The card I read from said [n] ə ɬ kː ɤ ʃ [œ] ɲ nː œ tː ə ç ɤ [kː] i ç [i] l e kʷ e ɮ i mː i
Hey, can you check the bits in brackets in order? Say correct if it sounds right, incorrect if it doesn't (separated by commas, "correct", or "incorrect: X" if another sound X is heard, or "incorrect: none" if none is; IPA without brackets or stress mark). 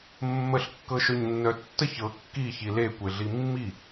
incorrect: mː, correct, correct, correct